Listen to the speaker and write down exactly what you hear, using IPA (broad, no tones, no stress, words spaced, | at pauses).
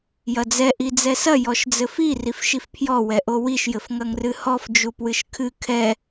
jɐd͡zɛ ʔid͡zɛsɐ jɔʃd͡zɘfi rifʃifpʰjɔ wɛʔowiʃ jɘfŋɐŋrɨhɔf d͡ʒupwɨʃkʰɨ kʰɛ